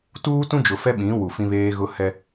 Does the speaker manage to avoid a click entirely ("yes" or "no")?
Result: yes